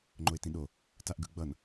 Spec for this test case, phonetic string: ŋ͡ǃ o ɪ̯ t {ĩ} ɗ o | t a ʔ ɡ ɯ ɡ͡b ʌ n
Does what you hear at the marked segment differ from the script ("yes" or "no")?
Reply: no